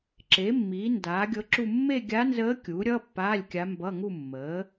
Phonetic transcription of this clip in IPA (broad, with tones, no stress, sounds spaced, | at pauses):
ǁ e˩˥ mː iː˩˥ n d aː˩˥ ɡʲ ɤ˧˥ ǁ u˥˧ mː e˥˧ ɡʲ a˧˥ n z əː˧˥ kʲ uː˩˥ ɾʲ ʌː˧˥˧ pː aː˧˥˧ lʲ kʲ a˧˥ m b ʌ˧˥˧ ŋ u˥˧ mː əː˩˥